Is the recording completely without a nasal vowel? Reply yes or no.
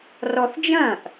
no